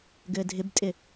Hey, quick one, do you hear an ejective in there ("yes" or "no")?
yes